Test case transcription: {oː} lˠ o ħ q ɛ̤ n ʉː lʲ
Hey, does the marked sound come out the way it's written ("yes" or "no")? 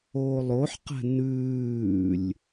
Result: yes